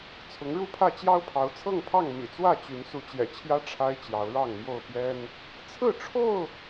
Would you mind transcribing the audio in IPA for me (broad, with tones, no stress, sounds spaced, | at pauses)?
t͡sʰ ʊ˨˦ ŋ ɻ u˥˨ pʰ ä˥˨ t͡ɕ j ɑ˦ ʊ̯ pʰ ɑ˨˦ ʊ̯ t͡sʰ ɤ˥˨ ŋ pʰ ɑ˥˨ ŋ m ḭ˨˩ t͡s w ä˥˨ t͡ɕ y˨˦ n s u˨˦ t͡ɕ j ɛ̰˨˩ t͡ɕʰ j ä˦ ʈ͡ʂʰ a˦ ɪ̯ t͡ɕ j ɑ˨˦ ʊ̯ ɻ ɑ˥˨ ŋ m j o˥˨ ʊ̯ p j ɛ˦ n | t͡sʰ ɹ̩˥˨ ʈ͡ʂʰ o˥˨ ʊ̯